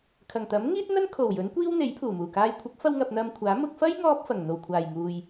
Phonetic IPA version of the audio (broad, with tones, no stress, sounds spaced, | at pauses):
kʰ ɐ˨˩ ŋ t̪ ɐ˨˥ m ŋ iː˥ t̚ n̪ ɐ˥ n kʰ o˨˩ w j ɵ˨˥ n kʷ iː˥ w n̪ e˨˥ j pʰ uː˨˩ m uː˨˩ k aː˧ j kʷʰ ɪ˨˥ k̚ f ɐ˧ w ŋ ɐ˨ p̚ n̪ ɐ˧ m kʷʰ aː˨˥ m ʊ˧ k̚ f ɐ˥ j ŋ ɔː˥ p̚ f ɐ˨˩ ŋ n̪ o˨˩ w kʷʰ aː˨˩ j ŋ uː˨ j